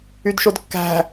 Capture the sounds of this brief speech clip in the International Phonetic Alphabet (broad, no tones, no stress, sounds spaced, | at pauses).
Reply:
y d ʃ o d kː æ̤